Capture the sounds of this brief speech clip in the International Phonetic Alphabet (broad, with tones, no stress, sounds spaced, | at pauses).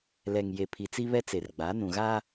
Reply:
l ɛ˨ ŋ j e˨ pʰ i˨ t͡s i˦ β ɛ˦ t͡s e˨ r ɡ͡b a˨˦ n ũ˨ ɣ a˦